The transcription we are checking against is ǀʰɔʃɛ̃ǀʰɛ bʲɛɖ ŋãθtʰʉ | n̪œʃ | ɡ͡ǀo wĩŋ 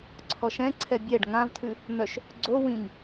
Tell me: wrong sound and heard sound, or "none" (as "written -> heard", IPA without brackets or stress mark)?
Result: θ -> v